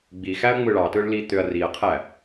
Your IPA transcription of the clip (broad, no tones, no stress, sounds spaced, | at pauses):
ɡ͡b i x æ ɐ̯ ŋ͡m ɯ ɭ ɑ t ɯ ɭ l i t̪ ø ɐ̯ r i ɐ̯ qʰ æ